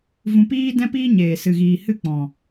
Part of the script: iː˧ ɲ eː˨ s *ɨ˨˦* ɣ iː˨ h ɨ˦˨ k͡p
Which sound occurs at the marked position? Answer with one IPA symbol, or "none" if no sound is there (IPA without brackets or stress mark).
ɨ˨